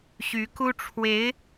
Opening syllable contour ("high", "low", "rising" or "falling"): rising